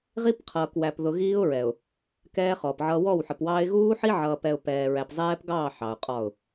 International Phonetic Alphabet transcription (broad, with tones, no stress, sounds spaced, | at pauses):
ʁ i˦ p qʰ ʌː˨ k w æ˨ p ð ʊ˨ ɣ iː˦ ʊ̯ ɹ ɛ˨ ʊ̯ | k ɛː˦ χ ɔ˨ p ʕ ʌ˦ w ɔ˦˨ w ħ ə˨ p w ɑː˦ ɪ̯ ɣ uː˦ ħ i˦ ʕ ʌː˨ p ɛ˨ ʊ̯ p ɛː˨ ɹ æ˨ p zˤ ɛː˦ p ɡ ɑː˦˨ ħ ɑ˨ ʊ̯ qʼ ɒ˦˨ ʊ̯